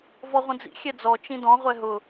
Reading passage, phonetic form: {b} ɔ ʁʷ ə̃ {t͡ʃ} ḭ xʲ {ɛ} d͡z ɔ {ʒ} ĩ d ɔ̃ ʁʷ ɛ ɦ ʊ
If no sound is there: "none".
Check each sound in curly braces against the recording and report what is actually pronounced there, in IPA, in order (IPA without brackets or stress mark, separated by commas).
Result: v, d͡z, ɛ, t͡ʃ